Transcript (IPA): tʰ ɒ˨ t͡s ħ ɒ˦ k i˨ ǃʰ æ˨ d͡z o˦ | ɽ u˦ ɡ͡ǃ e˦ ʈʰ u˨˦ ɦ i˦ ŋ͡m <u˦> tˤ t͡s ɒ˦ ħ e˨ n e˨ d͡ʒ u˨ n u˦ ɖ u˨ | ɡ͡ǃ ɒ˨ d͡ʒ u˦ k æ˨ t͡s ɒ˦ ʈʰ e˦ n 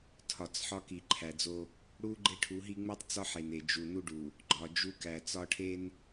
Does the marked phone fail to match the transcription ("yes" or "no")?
no